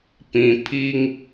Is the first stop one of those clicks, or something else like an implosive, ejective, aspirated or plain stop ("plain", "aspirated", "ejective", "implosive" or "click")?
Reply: plain